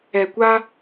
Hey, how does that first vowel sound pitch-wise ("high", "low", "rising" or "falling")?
low